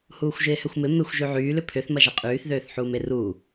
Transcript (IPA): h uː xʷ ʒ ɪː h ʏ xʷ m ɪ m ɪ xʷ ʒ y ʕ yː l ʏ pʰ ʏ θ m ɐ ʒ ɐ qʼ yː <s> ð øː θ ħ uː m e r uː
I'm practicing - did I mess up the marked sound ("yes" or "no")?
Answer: yes